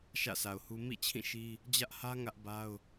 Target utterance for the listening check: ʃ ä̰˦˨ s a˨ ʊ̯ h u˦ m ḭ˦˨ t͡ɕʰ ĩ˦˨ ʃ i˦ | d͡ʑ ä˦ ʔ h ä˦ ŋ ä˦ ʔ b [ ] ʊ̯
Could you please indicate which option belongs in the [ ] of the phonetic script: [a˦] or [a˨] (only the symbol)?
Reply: a˦